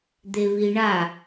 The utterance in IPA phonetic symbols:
d̪ e β i ɳ a

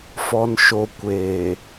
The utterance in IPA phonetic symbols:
f ɔ˨ n ʃ o˨ kʷ eː˨

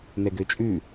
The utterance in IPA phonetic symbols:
n ɛ ɡ ø t͡ʃʼ ʉ

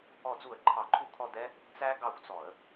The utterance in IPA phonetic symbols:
ɔ˧˩˧ d͡z u˧˩˧ ə̯ ǃʰ ɑ˧˩˧ ǃʰ u˦˨ kʰ ɔ˦˨ d ɛ˦˥ | t͡s æ˦˥ ɡ ɑ˦˨ xʷ t͡s ɔ˧˩˧ ə̯

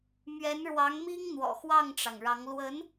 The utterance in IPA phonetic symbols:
m ɥ ɛ˧˥ n ɻ w ɑ˧˥ ŋ m i˥ ŋ n̪ w ɔ̰˨˩ x w ɑ˥˩ ŋ ʈ͡ʂ ɑ˩ ŋ ɻ ɑ˧˥ ŋ l w ə˧˥ n

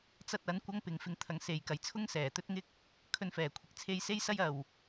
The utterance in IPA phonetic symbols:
t͡s ɐ˥ t̚ ɐ˨˥ n kʷ ɐ˥ ŋ p ɪ˧ ŋ f ɪ˧ ŋ t̪ʰ ɐ˨˧ ŋ s e˨ j k ɐ˨ j t͡sʰ ʊ˥ ŋ s ɛː˨˩ t̪ ɵ˥ t̚ ŋ ɪ˥ k̚ | kʰ ɵ˧ n f ɛː˨˩ kʷʰ ɪ˨˥ k̚ t͡sʰ e˧ j s e˥ j s ɐ˥ j ɐ˨ w

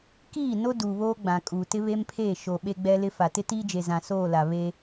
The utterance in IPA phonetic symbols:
k iː˦˨ n o˦ d uː˨ β oː˦ ɡ͡b ã˨ kʼ uː˨ t ɪ˦ β e˦ m pʰ eː˦˨ ʃ o˨ ɓ e˦ ɡ͡b ɛ˦ l ɪ˦ f a˨ t ɪ˦ t iː˦ d͡ʒ e˨ z ã˨ s oː˦˨ l a˨ β e˦

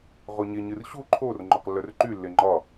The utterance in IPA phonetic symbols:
ʁ o ɲ e ɲ ɨ r ɕ u ǃʰ o r ŋ͡ǃ o q lː œ r ǃ y lː e ŋ͡ǃ ɒ

